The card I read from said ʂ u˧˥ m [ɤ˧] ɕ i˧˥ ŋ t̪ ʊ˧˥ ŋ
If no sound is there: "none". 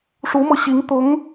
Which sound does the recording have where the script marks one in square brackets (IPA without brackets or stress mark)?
ɤ˧